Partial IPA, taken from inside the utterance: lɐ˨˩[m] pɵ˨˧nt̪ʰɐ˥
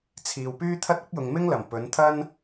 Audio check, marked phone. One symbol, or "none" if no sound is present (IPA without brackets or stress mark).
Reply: m